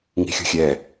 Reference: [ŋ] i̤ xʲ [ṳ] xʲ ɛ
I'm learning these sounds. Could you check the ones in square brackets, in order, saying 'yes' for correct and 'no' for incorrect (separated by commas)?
yes, yes